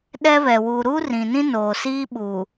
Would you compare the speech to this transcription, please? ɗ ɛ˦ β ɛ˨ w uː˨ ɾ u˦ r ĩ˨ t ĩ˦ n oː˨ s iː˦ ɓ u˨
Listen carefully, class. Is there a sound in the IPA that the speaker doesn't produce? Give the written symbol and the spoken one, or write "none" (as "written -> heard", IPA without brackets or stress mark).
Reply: t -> n